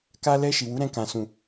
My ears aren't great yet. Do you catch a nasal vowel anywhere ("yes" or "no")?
yes